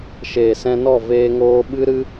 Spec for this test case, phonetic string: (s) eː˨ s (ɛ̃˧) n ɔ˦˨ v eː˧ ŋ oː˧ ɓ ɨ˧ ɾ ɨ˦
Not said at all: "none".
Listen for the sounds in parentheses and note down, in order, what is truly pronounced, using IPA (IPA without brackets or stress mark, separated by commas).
ʃ, ɛ̃˧